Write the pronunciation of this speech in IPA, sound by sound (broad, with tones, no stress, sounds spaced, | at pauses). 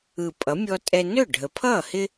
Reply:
ɯ˨˩ pʼ ʌ˩˥ mʲ ɔ˦ tʼ ɛ˦ n ɵ˥˩ ɖʱ ə˨˩ pʰ ʌː˥˩ h ɪ˦